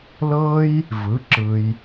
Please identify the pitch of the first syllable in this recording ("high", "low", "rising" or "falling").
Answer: high